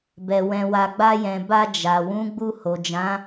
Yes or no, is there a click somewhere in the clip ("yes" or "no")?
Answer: no